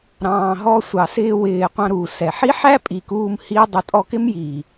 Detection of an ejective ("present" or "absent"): present